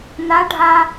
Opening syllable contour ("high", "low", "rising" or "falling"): rising